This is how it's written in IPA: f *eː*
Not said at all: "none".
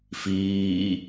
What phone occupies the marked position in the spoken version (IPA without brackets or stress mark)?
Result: iː